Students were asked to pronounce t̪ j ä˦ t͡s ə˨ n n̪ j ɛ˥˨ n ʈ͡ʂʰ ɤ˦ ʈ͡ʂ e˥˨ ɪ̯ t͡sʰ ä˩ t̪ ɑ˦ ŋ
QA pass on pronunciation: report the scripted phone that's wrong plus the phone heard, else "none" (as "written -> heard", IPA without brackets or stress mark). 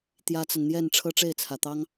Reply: none